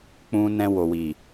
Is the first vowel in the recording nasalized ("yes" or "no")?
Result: yes